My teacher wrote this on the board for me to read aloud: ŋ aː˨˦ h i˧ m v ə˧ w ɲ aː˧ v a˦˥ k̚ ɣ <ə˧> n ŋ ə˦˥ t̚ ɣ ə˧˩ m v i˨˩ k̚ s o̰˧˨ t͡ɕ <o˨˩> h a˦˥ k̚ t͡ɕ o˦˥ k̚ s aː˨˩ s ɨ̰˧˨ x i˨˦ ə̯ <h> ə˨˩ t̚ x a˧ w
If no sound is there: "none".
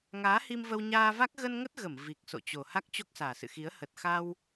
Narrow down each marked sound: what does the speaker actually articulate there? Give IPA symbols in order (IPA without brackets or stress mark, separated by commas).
ə˧, o˨˩, h